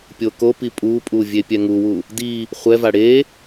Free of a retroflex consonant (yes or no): no